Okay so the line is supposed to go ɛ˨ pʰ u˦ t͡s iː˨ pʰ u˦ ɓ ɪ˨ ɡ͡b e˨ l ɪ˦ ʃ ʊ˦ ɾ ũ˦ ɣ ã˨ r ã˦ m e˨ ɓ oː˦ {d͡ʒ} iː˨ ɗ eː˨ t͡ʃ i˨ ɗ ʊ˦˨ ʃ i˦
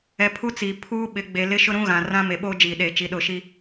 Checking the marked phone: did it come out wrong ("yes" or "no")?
no